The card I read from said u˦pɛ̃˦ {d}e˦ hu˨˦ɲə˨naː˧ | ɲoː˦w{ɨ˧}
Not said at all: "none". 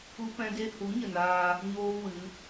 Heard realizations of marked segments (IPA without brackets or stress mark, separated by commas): d, ɨ˨˦